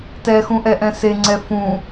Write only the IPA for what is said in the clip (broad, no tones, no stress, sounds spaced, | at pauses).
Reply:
t ɛ x ũ ʔ ɛ ʔ ɛ̃ s e ŋ͡ǀ ɛ f ũ